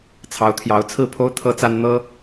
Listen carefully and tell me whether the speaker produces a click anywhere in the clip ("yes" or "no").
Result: no